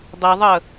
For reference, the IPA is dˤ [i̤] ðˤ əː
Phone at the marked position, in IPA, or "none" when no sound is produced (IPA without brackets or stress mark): i